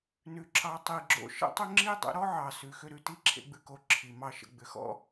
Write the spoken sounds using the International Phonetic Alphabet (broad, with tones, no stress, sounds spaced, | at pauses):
n ʉ˩ ǁ ɑ˩˥ tˤ i˩ ɡ͡ǁ o̰˧ ʃ ə̰˥ tˤ ʏ˥ ŋ͡ǁ i˥ dˤ ə̰˩˥ ɾ ɔ˥ ʕ ɑ˩ s ʉ˩ x ʏ˧ ɾ ʉ˩ t i˥ ǁʰ ḛ˧ ɡ͡b ʉ˧ k o˩˥ ǁʰ i˩ m ɑ˧ ʃ ə̰˧˩ ɡ͡b ʏ˩˥ x ɔ̰˥